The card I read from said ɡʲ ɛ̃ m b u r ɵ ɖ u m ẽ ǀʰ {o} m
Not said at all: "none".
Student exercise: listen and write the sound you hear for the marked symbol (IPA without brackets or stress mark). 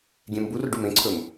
ɵ